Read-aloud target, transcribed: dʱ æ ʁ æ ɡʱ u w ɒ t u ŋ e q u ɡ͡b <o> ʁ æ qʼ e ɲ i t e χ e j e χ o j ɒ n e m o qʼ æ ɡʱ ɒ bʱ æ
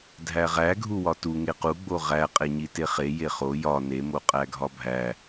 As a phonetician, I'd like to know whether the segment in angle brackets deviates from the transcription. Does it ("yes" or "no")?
no